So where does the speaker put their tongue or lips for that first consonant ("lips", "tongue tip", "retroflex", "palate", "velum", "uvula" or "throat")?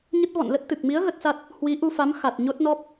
palate